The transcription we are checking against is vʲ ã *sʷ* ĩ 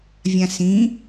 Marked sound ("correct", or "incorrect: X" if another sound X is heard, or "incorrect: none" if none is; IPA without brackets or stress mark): incorrect: s